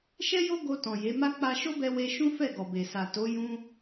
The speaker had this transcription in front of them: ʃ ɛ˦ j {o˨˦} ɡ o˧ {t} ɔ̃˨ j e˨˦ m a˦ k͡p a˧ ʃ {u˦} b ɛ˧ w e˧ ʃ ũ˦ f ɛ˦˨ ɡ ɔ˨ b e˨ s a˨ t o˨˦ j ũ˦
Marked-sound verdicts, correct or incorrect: incorrect, correct, incorrect

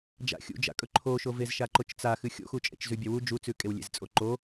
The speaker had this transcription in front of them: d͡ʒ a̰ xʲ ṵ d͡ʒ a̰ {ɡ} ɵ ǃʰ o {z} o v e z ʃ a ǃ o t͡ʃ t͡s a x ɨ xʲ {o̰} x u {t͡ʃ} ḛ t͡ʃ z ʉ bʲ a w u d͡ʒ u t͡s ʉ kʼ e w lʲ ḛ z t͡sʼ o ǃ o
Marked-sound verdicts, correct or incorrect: incorrect, incorrect, correct, incorrect

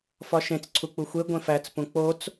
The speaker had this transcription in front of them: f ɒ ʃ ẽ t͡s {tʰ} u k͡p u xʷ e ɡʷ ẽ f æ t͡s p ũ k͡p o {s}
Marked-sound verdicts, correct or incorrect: incorrect, incorrect

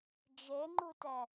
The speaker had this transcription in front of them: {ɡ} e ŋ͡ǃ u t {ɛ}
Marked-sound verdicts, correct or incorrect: incorrect, correct

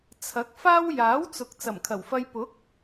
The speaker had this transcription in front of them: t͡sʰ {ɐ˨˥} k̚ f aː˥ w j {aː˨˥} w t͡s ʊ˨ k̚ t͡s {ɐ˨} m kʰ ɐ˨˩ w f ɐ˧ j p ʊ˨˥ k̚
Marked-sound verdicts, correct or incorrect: correct, correct, incorrect

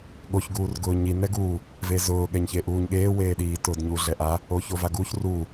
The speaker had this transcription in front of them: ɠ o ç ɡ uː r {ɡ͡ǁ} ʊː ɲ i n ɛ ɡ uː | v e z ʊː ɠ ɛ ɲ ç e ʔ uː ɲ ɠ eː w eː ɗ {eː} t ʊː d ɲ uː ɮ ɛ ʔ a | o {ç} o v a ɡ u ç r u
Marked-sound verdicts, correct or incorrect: incorrect, incorrect, correct

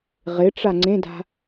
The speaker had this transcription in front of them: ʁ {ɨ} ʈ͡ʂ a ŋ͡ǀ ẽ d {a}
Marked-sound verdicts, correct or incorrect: incorrect, incorrect

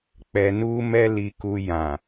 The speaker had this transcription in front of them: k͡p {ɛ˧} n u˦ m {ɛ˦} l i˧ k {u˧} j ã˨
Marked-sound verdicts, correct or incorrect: correct, correct, correct

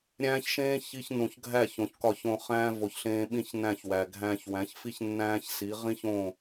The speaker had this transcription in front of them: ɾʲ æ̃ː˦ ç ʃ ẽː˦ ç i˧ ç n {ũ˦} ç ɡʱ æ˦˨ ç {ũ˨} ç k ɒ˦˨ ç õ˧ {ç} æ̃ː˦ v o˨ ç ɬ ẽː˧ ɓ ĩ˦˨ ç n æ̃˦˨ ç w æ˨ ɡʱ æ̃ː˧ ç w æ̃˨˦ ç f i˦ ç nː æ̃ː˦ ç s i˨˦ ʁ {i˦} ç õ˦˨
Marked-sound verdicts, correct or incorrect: incorrect, incorrect, incorrect, incorrect

